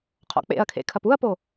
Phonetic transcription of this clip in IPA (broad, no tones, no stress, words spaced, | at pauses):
qʰɔ̰k͡pḛɐ̯kʰḛ kʰɐpuɐ̯po